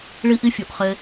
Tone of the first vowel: high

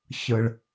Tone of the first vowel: low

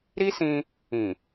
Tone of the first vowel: high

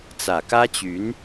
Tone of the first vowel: low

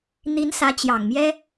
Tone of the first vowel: rising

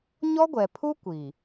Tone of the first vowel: high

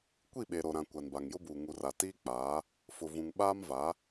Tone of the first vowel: falling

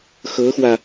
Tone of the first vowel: rising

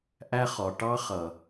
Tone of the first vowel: high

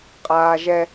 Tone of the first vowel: high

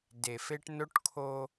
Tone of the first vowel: low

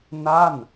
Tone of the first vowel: falling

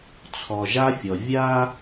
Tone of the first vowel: low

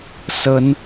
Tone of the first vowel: rising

